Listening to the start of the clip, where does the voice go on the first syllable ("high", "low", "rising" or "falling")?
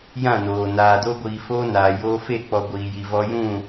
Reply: falling